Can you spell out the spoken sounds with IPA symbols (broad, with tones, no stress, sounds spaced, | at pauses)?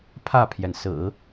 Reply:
pʰ ä˥˩ pʰ j ɛ˩ n s ɹ̩˨˩˦